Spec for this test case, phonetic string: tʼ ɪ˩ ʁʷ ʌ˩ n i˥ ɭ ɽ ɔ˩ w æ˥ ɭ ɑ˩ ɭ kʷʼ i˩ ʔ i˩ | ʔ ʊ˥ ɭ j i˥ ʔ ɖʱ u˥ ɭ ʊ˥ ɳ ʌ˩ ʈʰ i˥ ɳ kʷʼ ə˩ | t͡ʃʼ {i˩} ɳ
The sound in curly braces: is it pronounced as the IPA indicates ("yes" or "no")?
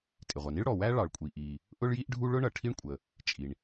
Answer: yes